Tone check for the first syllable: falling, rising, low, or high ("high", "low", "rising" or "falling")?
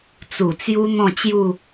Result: low